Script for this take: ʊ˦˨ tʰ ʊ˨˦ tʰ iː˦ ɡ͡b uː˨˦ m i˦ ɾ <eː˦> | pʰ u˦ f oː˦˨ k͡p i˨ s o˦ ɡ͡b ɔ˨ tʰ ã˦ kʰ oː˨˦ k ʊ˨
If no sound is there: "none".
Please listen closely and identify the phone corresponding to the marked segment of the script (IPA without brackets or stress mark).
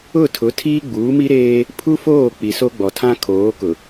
eː˦